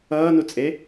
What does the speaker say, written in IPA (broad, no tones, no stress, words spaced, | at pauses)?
ʌːnut͡sʼe